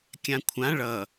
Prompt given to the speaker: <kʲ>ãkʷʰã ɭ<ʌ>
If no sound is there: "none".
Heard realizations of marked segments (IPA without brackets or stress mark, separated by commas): kʲ, ʌ